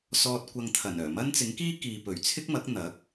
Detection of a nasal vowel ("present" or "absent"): absent